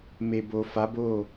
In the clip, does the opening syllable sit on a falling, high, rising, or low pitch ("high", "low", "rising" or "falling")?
low